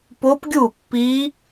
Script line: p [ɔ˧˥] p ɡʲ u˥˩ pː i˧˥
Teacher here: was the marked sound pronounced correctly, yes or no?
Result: no